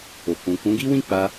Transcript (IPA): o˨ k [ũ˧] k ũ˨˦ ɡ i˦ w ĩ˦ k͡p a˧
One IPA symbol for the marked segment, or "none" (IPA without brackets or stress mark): ũ˨